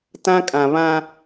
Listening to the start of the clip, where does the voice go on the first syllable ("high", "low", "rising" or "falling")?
high